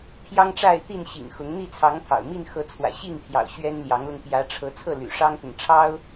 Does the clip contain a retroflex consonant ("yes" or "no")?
yes